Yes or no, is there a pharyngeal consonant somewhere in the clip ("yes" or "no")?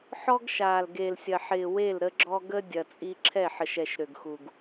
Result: yes